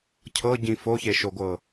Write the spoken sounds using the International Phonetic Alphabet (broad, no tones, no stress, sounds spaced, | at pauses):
cʰ ɤ ɟ ĩ f o ç e ʃ o ɡʷ ɤ